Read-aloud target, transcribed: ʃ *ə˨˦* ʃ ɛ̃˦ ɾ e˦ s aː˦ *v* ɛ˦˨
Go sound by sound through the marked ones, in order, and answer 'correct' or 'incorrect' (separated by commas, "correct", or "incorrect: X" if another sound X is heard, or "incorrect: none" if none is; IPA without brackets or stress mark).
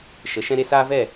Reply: correct, correct